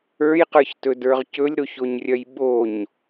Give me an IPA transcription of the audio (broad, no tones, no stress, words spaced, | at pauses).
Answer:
ə˞jqə˞çtɵdə˞ʁ cɵlʲɾoçoɲrʲœj ɓoɲ